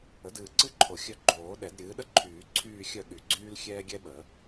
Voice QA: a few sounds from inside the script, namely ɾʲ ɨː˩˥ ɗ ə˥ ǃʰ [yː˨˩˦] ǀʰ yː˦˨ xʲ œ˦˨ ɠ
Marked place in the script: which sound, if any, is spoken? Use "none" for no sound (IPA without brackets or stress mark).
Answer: yː˨˩˦